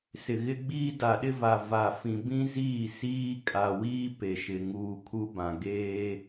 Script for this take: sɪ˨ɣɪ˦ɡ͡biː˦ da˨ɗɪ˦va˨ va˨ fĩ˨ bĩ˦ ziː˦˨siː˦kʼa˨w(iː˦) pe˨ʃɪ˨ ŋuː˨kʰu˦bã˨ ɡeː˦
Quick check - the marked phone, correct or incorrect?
correct